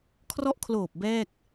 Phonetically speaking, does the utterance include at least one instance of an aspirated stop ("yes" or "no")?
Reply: yes